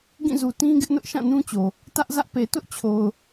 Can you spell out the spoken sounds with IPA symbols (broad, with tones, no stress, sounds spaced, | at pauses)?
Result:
ɡ ĩ˦˨ z u˨ t ĩ˦ ɡ ɪ˦ ʔ n ʊ˦ ʔ ʃ ã˦˨ n ũ˦ t͡ɕ o˨ | t ä˦ ʔ z ä˦ ʔ p e˨ t ʊ˦ ʔ t͡ɕʰ o˨ ʊ̯